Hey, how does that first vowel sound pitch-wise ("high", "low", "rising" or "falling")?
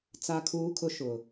high